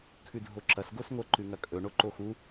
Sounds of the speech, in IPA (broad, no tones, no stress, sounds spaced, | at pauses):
kʰ ʉ dʱ o ǁ ɐ s ɡ o s ŋʷ ɐ ǃ ʉ ŋ ɐ kʼ ɵ ɳ o ǃ o x u